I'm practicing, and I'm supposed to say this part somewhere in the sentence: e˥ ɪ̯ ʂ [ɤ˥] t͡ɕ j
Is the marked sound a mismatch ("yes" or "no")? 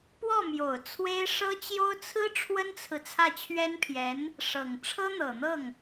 no